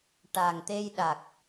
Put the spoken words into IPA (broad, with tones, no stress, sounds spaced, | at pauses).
ʈ a˨˩ ŋ t̪ e˧ j ɗ a˨˩ k̚